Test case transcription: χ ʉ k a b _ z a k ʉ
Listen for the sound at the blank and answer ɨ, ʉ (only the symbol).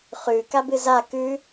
ɨ